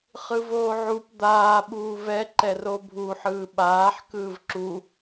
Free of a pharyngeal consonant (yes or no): no